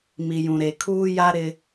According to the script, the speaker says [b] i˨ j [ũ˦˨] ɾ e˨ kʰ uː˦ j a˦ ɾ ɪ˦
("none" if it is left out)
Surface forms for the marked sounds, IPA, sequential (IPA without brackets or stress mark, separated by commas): m, ũ˨